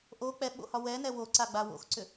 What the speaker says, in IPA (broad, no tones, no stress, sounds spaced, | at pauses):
ʔ o k͡p ɛ ɓ o̰ h ɒ w ɛ n ɛ w o ǀ a ɡ͡b a w o̰ x ǀ ʏ